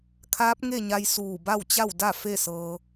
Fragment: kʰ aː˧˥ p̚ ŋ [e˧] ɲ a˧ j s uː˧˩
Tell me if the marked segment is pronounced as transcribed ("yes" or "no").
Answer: no